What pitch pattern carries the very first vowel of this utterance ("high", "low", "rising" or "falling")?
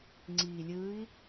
low